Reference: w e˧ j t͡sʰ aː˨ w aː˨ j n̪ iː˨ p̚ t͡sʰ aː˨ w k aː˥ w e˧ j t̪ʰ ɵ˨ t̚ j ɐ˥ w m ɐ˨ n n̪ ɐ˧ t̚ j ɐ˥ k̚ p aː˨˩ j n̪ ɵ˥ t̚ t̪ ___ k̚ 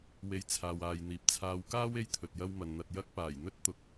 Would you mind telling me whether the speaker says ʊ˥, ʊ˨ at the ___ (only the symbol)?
ʊ˨